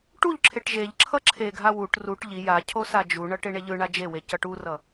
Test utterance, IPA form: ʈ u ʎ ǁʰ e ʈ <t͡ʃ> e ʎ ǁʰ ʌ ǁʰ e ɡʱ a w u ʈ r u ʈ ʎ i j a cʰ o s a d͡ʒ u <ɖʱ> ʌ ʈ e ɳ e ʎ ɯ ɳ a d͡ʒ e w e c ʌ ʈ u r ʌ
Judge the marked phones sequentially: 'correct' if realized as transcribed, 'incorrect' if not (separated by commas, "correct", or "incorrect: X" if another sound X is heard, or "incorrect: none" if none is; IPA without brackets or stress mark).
incorrect: ʒ, incorrect: ɳ